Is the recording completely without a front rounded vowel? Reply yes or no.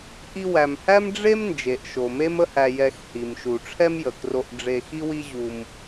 yes